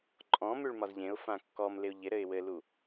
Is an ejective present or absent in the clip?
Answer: present